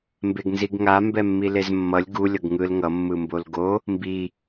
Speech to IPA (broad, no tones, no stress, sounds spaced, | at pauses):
m b e ɡ n z i ɡ ŋ a m b ɛ mː i l e z mː ʌ lʲ ɡ u lʲ ʌ ɡ ŋ ɯ l ŋ ʌ mː ɯ m b o l ɡ o | m b i